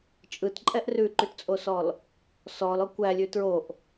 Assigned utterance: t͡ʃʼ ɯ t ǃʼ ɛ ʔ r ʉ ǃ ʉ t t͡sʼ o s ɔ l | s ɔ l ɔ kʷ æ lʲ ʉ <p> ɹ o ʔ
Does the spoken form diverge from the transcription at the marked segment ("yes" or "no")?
yes